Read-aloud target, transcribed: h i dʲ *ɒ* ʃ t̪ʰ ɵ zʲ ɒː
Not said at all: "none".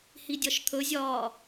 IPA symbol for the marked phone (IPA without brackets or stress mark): ɒ